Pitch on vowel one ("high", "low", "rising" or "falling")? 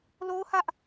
high